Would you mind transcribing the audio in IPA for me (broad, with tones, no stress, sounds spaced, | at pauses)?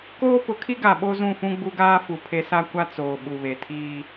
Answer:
k oː˦ p ʊ˨˦ kʰ i˦ ɡ a˨ ɓ o˦ z ũ˦˨ f ũ˦ ɡ͡b u˦ ɡ aː˦ f u˨ pʰ e˦ s a˦ kʷ a˦ t͡s oː˨ ɓ u˨ β e˨ tʰ iː˦